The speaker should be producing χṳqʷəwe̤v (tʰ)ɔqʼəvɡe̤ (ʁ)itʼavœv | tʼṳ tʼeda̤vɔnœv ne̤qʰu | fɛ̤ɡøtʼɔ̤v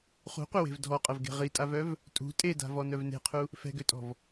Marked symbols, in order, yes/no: no, yes

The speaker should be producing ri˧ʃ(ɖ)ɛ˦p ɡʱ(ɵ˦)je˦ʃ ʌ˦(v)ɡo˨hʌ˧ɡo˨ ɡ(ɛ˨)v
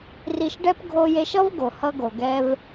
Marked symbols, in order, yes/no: yes, no, yes, no

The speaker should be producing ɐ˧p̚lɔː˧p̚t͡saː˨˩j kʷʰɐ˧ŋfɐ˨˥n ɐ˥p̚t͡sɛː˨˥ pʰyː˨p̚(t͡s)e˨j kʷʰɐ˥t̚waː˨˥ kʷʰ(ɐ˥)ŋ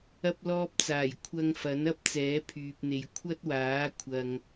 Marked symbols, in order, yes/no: no, no

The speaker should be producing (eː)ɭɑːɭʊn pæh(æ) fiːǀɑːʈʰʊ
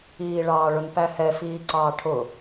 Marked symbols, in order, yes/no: no, no

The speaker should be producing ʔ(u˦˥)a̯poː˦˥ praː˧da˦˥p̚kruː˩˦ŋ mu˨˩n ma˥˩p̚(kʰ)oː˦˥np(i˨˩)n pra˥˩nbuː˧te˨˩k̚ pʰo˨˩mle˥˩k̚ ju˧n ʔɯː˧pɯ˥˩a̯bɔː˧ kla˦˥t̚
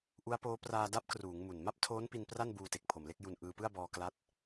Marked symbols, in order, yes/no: yes, no, no

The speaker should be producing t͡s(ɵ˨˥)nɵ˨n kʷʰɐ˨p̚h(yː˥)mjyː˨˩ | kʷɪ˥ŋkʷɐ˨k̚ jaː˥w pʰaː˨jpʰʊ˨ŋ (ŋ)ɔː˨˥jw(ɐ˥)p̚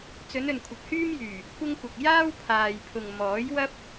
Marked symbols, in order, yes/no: no, yes, no, yes

